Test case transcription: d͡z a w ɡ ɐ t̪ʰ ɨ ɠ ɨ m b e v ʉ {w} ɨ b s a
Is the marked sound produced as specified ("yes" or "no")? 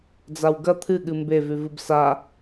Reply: no